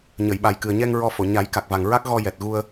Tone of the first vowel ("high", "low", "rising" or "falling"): low